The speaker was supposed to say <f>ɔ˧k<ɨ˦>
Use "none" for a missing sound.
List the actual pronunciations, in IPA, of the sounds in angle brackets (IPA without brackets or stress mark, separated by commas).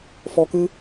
f, ɨ˦